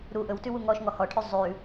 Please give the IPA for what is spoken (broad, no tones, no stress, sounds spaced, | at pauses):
ɾ u ʔ ɵ w t ʉ w u ŋ ɔ ʃ ŋ ɔ h ɔ ʈʰ ʉ zˤ ʉ